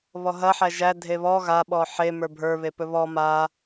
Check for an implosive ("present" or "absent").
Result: present